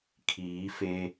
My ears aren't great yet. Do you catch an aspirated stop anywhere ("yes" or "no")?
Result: yes